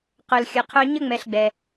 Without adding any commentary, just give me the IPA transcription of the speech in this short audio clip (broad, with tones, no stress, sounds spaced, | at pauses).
q œ˨ l xʲ ʌ˨ qʰ œ˦ ɲ ə˥ ŋ͡m ɛ˨ ɬ ɡ͡b ɛ˩